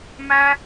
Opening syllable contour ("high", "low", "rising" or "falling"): high